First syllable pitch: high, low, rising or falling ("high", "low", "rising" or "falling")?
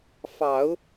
low